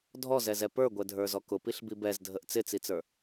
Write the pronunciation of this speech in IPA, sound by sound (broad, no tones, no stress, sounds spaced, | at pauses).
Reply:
dʱ ɔ z ɛ z ɛ p ə˞ ɡʷ ɛ dʱ ə˞ z ɔ k ʊ p i ɬ b i b ɛ z dʱ ə ʔ t͡s ɪ t͡s i t͡s ə˞